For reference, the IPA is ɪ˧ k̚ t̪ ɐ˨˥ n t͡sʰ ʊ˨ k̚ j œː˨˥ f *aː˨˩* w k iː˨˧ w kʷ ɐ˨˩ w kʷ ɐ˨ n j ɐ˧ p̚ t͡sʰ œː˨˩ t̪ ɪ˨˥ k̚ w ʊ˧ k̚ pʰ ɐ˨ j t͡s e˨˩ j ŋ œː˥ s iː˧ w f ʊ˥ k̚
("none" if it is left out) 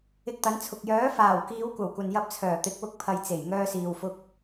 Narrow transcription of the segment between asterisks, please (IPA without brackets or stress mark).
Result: aː˨˩